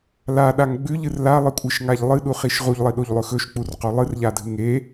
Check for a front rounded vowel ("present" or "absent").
absent